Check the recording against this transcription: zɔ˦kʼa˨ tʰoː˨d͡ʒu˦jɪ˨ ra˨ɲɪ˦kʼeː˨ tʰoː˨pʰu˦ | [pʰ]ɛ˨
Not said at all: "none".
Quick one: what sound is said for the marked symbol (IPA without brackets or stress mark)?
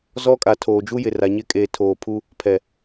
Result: pʰ